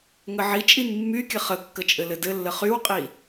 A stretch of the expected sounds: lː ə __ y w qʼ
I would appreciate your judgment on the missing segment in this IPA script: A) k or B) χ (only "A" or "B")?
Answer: B